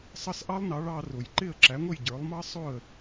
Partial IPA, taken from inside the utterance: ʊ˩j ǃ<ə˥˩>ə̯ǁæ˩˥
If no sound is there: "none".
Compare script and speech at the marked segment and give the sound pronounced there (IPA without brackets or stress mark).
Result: ɪ˥˩